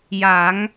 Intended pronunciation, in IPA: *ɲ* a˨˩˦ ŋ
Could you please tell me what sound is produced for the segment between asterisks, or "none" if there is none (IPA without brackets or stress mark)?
j